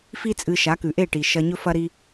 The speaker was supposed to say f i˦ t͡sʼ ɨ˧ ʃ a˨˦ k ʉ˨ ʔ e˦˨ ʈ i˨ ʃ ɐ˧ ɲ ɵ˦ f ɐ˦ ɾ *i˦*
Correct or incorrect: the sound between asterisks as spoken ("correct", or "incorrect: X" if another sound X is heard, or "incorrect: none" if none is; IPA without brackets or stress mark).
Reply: correct